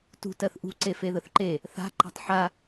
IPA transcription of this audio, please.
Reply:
t ṳ t ɜ θ ʔ ṳ ǀ e f e ð ə θ ǃ e | θ a̤ ǃ a̤ tˤ ħ a

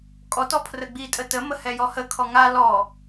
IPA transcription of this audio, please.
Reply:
kʼ ɔ t ɔ pʰ r ə ɡ͡b i tʼ ə t ə m ə h ɛ j ɔ h ə kʰ ɔ ŋ a l ɔ

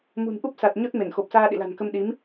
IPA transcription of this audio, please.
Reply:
m ṳ˨˩ n ʔ u˦˥ p̚ s a˨˩ t̚ ɲ o˦˥ t̚ m e˧˩ n x o˨˩ p̚ s aː˧ ɗ ḭ˧˨ l a̤˨˩ n k ə˧ m ɗ i˨˦ m

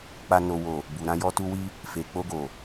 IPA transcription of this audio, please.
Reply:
k͡p a˨ n o˨ w o˨ | b u˨ ɾ ã˧ j ɔ˧ t u˧ w i˧ | f e˨ k͡p o˧ ɡ o˨

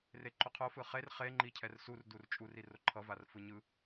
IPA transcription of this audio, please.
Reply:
r e ǃ o qʰ o f ɯ χ e r χ e ŋ͡ǃ i cʰ ɛ r s u r d u r t͡ʃʼ u r i r o ǃʰ ʌ v a r f ɯ ɲ ɯ

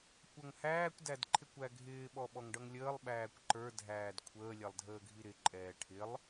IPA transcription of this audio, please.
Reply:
kʷ ʌ ŋ h æː kʷ d æ d ǃʰ ɪ kʷ æ ɡʱ ɪː ɓ ɔ ɓ ɔ ŋ ɖ ʌ ŋ lʲ əː lˠ ɓ æː kʷ ǃ ə˞ dʱ æː d kʷʰ əː lʲ ɛ lˠ dʱ əː ɡʱ i ɾ ɪ ǃʼ ɛː ʈʰ ɪ lˠ

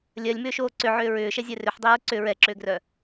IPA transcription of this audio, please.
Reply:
lʲ ɜ lʲ m ʏː ʃ oː ǀ ʏ ʕ ʏː ɹ ʏː ʃ ɛ zʲ ɛ r ʏ ħ dˤ ʏː ɹ ǀ ʏ ɹ ɛ ǁ ʏː ɡ r œ

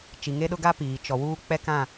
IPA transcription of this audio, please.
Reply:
t͡ʃ i˨ ŋ e˦ ɗ ʊ˦ ɡ a˦ p iː˨ t͡ʃ ɔ˨ w uː˦ k͡p ɛ˦ k ã˦˨

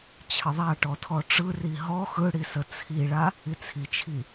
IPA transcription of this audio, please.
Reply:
t͡ɕʰ ə ðˤ a ʈ ɔ tʰ ɔ ʈ͡ʂ ɯ r i ɦ ɔ x ɯ ɽ i s ə t͡sʰ i ɭ a | i t͡sʰ i t͡ʃʰ i

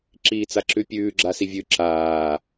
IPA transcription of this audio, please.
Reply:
ǁ iː t͡s a ǁ ʉ pʲ ʉː ɡ͡ǁ a s i vʲ ʉ ǁ aː

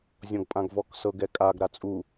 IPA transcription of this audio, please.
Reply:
zʲ ɔ̃ ɡ pʼ ã ɡ v ɔ k s ɤ ɡ ɛ kʼ a ɡ ɾ a t͡sʼ u

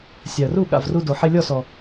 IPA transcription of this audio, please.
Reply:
sʲ a˨ ə̯ r u˦˨ ɠ a̰˦˨ v r u˧ d o˨ ħ e˧ lʲ ɔ˦˨ s ɔ˨

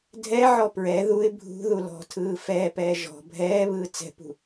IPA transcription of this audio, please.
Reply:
dʱ ɛ ʕ ɔ p ɹ ɛ ð u ɪ̯ bʱ ṳ ð u l ɔ̤ tʰ ɯː f ɛː p ɛː ʒ ɔ̤ bʱ ɛː β ɯː t͡s ɛ̤ p ṳ

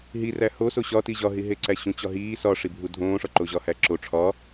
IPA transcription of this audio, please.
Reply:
ɦ i r æ h o s o ɕ ɒ t i ʑ ɒ ɦ i ɦ e ǀ æ ɕ ũ t͡ɕ ɒ ɦ iː s ɒ ʂ i bʱ u dʱ õː ʂ ɒ ǃ o ʑ ɒ h æ ǁ o ʈ͡ʂʰ ɒ

